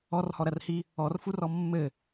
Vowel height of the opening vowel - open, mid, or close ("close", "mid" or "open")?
mid